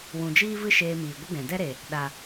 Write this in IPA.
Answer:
w ũ˨ d͡ʒ iː˦ v ɨ˦ ʃ eː˧ m iː˨ ɡʷ ə˦ ɡ ɛ̃˨ d ɛ˦ ɾ e˨ | ɗ a˨

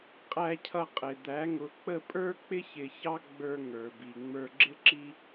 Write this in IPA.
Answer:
qʼ æ˧ cʰ ʌ˧ qʼ ɪ˩ d̪ æ˩˥ ŋ ʊ˩˥ k͡p ə˥˩ pʼ ə˞˥ k͡p ɪ˥ ç ɪ˧ ç ɑ˥ ɡ͡b ə˞˧ ŋ ə˞˩ b i˩ ŋ͡m ə˞˧ ɡ͡ǁ ɪ˥ ǁ i˥

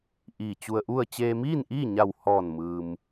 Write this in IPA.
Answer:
ʔ iː˧˩ t͡ɕ u˧ ə̯ ʔ u˥˨ ə̯ t͡ɕ eː˧ m iː˥˨ n ʔ iː˥˨ ɲ a˧˩ w h ɔː˧˩ n m ɯː˩ m

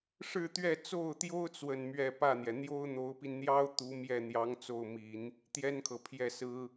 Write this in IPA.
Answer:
ʂ ɻ̩˥˧ t̪ ɥ ɛ˥˧ t͡s o˥˩ ʊ̯ t̪ j o˥ ʊ̯ t͡s w ə˥˧ n m ɥ ɛ˥˧ p ä˥˩ n̪ j ɛ˩ n̪ j o˥ ʊ̯ n̪ o˧˥ ʊ̯ p i˧ n n̪ j ɑ˥ ʊ̯ t̪ u˧˥ m j ɛ˥˩ n̪ j ɑ˧˥ ŋ t͡s o˥˩ ʊ̯ m i˨˩˦ n | t̪ j ɛ˥ n kʰ ɤ˨ pʰ j ɛ˥˩ s ɹ̩˥

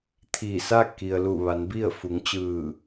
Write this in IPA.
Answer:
t̪ʰ iː˧˩ s a˥˨ k i˩ ə̯ l u˧˩ ʋ a˩˧ n b i˥˨ ə̯ f u˩˧ ŋ t͡ɕ ɯː˧˩

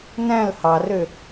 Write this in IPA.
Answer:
n æ̃ l h ɑ r ø

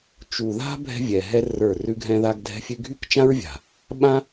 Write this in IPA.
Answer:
t͡ʃ u˨ ð a̤˦ bʱ ɛ̤˦ vʲ ɛ˨ ɦ ɛ˦ r ə˞˦˨ r ʉ˧ ɡʱ ɛ̃˧ ð a˧ ɡ dʱ ɛ̤˧ fʲ ʉ˧ ɡʱ y˦ k t͡ʃ ã˦ ɹ vʲ a̤˨ | ɓ ã˦

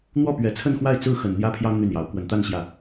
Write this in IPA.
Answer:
n̪ w ɔ˥˩ p ɥ ɛ˨˩ t͡sʰ ə˥˧ n x w a˥˧ ɪ̯ t͡s ɹ̩˥˩ x ə˨˩ n n̪ j ä˥ pʰ j ɑ˥ ŋ n̪ y˥˩ n j ɑ˧˥ ʊ̯ k w ə˨˩ n t̪ a˥˧ n ɕ j ä˥˩

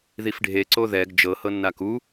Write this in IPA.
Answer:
ð i f ɖʱ e ǀ o ð ɛ ɡ d͡ʒ ɤ h ɤ nː a k u

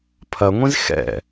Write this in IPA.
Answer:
pʰ ɐ ŋʷ ĩ z x ɛ̰

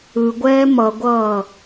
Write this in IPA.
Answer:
ɯ ɡʷ ɛː m ʌ ɡʷ ʌː

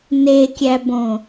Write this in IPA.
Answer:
n e kʲ æ b õ

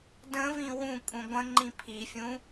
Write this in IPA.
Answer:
d ə̃ v ĩ w ũ kʼ ũ ɡʷ ə̃ ŋ͡ǃ ĩ pʰ i fʲ ũ

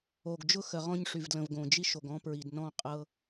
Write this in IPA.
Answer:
o˨ ɡ d͡ʒ ʊ˦ x ə˨ ʁ ɔ̃˦ ɲ ʂ y˨ v d l ə̃˨ v ɡ õ˨ d͡ʒ i˦ ʃ o˨ ɡ ɔ̃˦ p ɹ i˨ d n ɔ̃˦˨ qʼ ɤ˦

